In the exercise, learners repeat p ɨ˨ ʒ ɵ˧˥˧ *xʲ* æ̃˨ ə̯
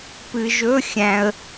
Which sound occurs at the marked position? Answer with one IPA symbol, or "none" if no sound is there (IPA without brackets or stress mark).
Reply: xʲ